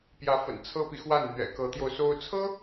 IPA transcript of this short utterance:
p j ä˧˥ f ə̰˨˩ n t͡sʰ ɤ˥ p i˨ x w a˥˩ n n̪ ɥ ɛ̰˨˩ k ɤ˧˥ t̪ j o˧ ʊ̯ s o˥ ʊ̯ t͡sʰ ɤ˥

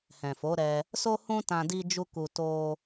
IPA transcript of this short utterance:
h ɛ̃˨ f o˨˦ ɾ ɛ˧ | s o˦ h ũ˦ t ã˧ d i˦ d͡ʒ u˦ k u˧ t o˦

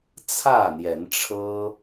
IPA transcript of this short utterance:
t͡sʰ ä˥˨ n̪ j ɛ˨˦ n ʈ͡ʂʰ ɤ˦

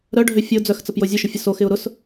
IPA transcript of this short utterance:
ɾ œ ɖʱ ø fʲ ə ʊ̯ d͡z œ x t͡s ə p j o zʲ ʊ ʃ ʊ fʲ ə s o x ɪ ʊ̯ ɾ ʊ s

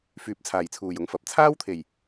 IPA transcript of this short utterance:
f yː˨˥ p̚ t͡sʰ aː˨˩ j t͡sʰ uː˨˩ j ʊ˧ ŋ f ɐ˨ p̚ t͡sʰ aː˥ w t̪ʰ e˨˩ j

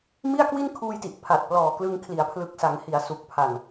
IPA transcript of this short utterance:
m i˥˩ a̯ k w i˥˩ n kʰ uː˧ j t i˨˩ ʔ pʰ a˨˩ t̚ p l ɔː˨˩ k l ɯ˧ ŋ kʰ l i˩˦ a̯ pʰ l ɯ˨˩ k̚ s a˩˦ ŋ h i˩˦ a̯ s u˨˩ k̚ pʰ a˨˩ n

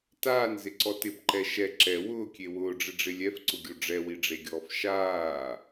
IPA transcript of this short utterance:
t aː n z ɪ ǀ ɔ t ɪ b ǃ ɛ ʃ ɛ ǁ ɛ w ʊː kʲ e w ʊː ɖ͡ʐ ɪ ɖ͡ʐ ɪ lʲ ɛ f ǀ ʊ ɡʲ o ɖ͡ʐ ɛ w i ɖ͡ʐ e ɡʲ ɔː f ʃ aː

